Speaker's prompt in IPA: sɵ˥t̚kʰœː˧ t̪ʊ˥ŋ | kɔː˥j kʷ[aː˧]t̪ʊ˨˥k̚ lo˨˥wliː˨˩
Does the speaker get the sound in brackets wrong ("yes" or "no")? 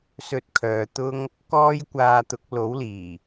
no